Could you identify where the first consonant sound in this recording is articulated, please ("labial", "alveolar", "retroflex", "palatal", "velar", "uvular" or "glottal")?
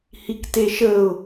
glottal